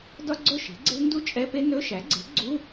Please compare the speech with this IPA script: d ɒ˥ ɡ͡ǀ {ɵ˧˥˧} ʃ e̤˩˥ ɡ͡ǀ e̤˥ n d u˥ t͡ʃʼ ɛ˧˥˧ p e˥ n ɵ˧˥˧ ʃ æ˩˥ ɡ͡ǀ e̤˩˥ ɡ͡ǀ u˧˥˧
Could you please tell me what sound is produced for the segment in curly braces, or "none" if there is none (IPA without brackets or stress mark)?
ɵ˥˨